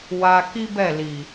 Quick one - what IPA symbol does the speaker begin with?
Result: w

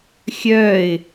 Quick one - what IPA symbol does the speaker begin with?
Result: xʲ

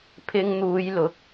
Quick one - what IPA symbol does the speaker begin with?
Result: pʰ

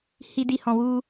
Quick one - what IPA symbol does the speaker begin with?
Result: h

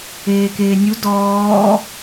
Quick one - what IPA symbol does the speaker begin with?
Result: eː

